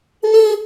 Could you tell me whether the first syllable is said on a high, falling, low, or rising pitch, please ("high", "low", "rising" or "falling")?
high